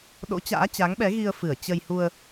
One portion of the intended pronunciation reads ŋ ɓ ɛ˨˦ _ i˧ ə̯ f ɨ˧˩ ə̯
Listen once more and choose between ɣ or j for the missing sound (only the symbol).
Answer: ɣ